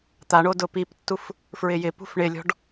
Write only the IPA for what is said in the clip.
t̪ a ɳ o d ʊ p i p tː u f | f ɹ ɪ j ɪ p ṳ f ɳ ɪ lʲ ɔ̤ ɖ

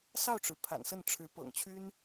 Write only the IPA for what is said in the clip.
s ɑ˥˩ ʊ̯ ʈ͡ʂ ɻ̩˩ pʰ a̰˨˩ n s ə˥˩ n ʈ͡ʂʰ ɻ̩˧˥ p ɤ̰˨˩ ŋ t͡ɕʰ y˥ n

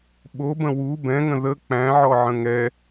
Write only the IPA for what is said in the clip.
ɓ o b ə̃ w u b ɛ̃ ŋ ə̃ ð ə k͡p æ̃ ʕ ɔ ʕ ə̃ ŋ ɛ

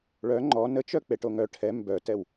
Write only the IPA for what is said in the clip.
ɭ œ ŋ͡ǃ ɔ n ə t͡ʃ œ k͡p e ʈ o ŋ œ ʈʰ ɛ m b œ t ɛ w

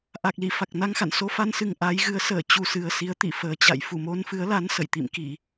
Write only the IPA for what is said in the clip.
ʔ a˨˩ k̚ l i˧˩ f a˨˩ k̚ n a˧ ŋ x a̰˧˨ n s o˧ f a˧ n s ɨ˨˩ ŋ ʔ a˨˦ j ɣ ɨ˨˦ ə̯ s əː˧˩ t͡ɕ u˨˩ s ɨ˨˩ ə̯ s i˨˦ ə̯ t̪ ḭ˧˨ f əː˨˩ t͡ɕ a̰˧˨ j f u˧˩ m o˧ n f ɨ˨˦ ə̯ l a˨˦ n s ə̰˧˨ j t̪ ḭ˧˨ m k i˧˩˨

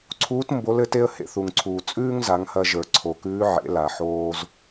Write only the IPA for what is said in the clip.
ǀʰ uː˧˥ t m b o˧˥ l ɘ˩˧ t e˥ ə̯ h ḛ˧ θ u˩ ŋ ǀʰ uː˩ t͡sʼ ʉː˥ ŋ z a˩˧ ŋ h ɐ˧ ʒ ə˞˩ ǀʰ o˩ k ʉː˧˥ ʕ ḛ˩˧ l a˩ ħ oː˧ z

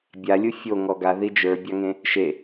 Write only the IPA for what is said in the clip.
bʲ a lʲ u fʲ o ŋ ɔ ɡ a ð i d͡ʒ ə˞ bʲ ɑ ŋ ẽ | ʃ e

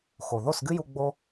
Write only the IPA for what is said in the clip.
x o˨ ð o˦˨ s ɡ ɨ˦ j u˧ ɡ͡b o˦

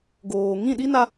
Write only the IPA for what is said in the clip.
ɡ oː˨ ŋ ĩ˦˨ ɗ i˦ n a˧

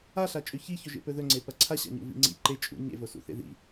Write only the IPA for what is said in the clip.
a ɬ a t͡ʃʼ ʉ ç i ç ɵ ʒ ḛ p ɵ ð ɵ ŋ͡ǀ e p ɐ ǀʰ a ɕ a̰ ɲ ṵ v ḭ ŋ͡ǀ ḭ ǃ e t͡ʃʼ ṵ ɲ ḛ v o s ṵ θ ḛ ð ḭ

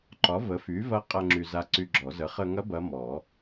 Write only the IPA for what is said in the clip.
ǃ ɒ˩˥ v ə˩˥ f y˩˥ v ɐ˧˥ qʼ ɐ˧ ŋ͡ǁ y˧ z a˧˥ ǀ y˧ ɡ͡ǁ ɔ˨˩˦ z ə˩˥ χ ə˧ ŋ ɐ˧˥ b ɐ˧˥ m ɔ˨˩˦

